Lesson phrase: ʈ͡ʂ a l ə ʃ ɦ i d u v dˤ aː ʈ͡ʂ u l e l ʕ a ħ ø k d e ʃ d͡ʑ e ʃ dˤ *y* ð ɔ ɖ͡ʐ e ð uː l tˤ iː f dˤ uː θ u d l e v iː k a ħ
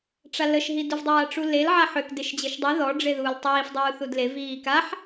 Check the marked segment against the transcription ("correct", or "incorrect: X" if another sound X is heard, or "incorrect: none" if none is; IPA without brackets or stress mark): correct